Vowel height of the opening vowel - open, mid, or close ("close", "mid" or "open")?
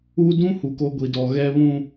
close